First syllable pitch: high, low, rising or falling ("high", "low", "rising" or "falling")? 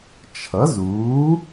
rising